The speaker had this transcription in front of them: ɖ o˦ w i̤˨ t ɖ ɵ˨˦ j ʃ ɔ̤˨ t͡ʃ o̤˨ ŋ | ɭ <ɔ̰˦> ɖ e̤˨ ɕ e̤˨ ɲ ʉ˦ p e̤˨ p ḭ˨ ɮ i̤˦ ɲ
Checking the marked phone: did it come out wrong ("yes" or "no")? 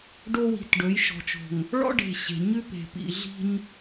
no